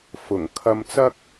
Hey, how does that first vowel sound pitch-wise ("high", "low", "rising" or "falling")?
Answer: low